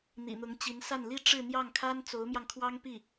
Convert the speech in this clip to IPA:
n̪ ḭ˨˩ n̪ ʊ˧˥ ŋ t͡ɕ i˧˥ n s a˥˩ n l i˥ ʈ͡ʂ ɻ̩˥˧ n̪ j ɑ˥˩ ŋ kʰ a˥ n t͡s o˧˥ ʊ̯ m j ɑ˧ ŋ kʰ w ɑ˥ ŋ p i˥˩

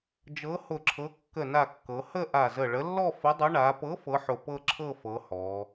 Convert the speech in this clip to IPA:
d͡ʒ ɤ˨˥ h ʊ˧˩ ǁʰ ɤ˨˥ kː ə˧˩ n a˧˩ kː ɤ˩˧ h ə˥˧ ʔ a˧˩ z ə˧˩ ɭ ə˨˥ lː ɔ˥˧ f ʊ˨˥ dˤ ʊ˨˥ ɳ a˩˧ p ɤ˨˥ f ɤ˨˥ ħ ʊ˧˩ p ɤ˥˧ ǁʰ ɤ˥˧ f ɤ˨˥ h ɔ˩˧

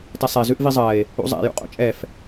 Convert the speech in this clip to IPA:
t ɛ sˤ ɛ z ʉ ʔ v i zˤ ɜ e̯ | ṵ zˤ ɛ̰ j ṵ qʼ o̰ t͡ʃʼ ɛ f

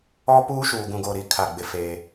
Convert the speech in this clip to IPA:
ɔ˦ p uː˦ ʃ uː˨ ɡ ũ˨ ɡ o˨ ɾ i˨ kʰ a˦˨ ɡ͡b ɪ˦ f eː˦

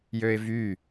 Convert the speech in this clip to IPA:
j ø ɪ̯ v y

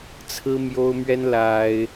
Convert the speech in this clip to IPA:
t͡sʰ ɹ̩˦ m j o˦ ʊ̯ m ɥ ɛ˦ n l a˦ ɪ̯

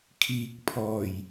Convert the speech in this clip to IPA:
kʰ iː˨ k̚ pʰ ɔː˨˩ j

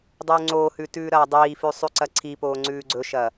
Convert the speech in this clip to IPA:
dˤ ʉː ŋ͡ǀ oː h ʉ t ʉː ɾ ɐː dˤ iː f ʉ sˤ ʉ ǀ ɐ ǀʰ i p oː ŋ͡ǀ ʉː ɡ͡ǀ ɵ ʃ ɐ

